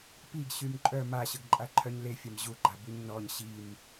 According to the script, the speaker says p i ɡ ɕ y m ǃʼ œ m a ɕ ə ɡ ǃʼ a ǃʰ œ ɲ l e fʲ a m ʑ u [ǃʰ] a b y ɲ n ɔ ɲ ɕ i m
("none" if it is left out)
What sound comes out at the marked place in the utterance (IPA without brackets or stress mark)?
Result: ɡ͡ǃ